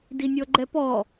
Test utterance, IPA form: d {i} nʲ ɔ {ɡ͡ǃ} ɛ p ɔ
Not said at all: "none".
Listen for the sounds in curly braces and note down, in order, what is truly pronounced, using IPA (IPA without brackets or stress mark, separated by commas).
i, ɡ͡ǃ